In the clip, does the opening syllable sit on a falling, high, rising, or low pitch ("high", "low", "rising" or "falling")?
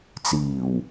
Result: low